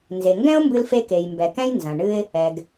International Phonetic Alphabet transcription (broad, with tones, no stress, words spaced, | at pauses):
nze˩ŋɡɛ̃˥ʊ̯mbɨ˧lfe˧ ke˩jmbɛ˩kɛ̃˥j nzɐ̃˩ ɳɨ˥ɪ̯ | ɛ˩ɡ